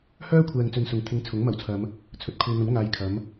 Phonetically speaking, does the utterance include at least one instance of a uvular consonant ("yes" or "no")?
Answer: no